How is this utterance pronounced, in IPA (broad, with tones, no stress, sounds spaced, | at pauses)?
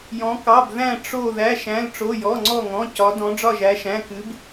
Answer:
j ɔ̃˩˧ k ɑ˩˧˩ b ð æ̃˧˩ ʈ͡ʂ o˧˩ ð æ˩˧˩ ʃ æ̃˩˧˩ l ʈ͡ʂ o˩˧˩ j ɔ˩˧˩ ŋ͡ǀ ɔ˧˩ ŋ ɔ̃˩˧˩ c ɒ˩˧ d ɔ̃˩˧ ɖ͡ʐ ɒ˧˩ ʒ æ˩˧ ʃ æ̃˩˧˩ k ɨ˩˧ b